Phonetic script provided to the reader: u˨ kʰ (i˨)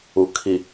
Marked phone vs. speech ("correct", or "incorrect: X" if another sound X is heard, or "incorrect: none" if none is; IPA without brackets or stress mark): correct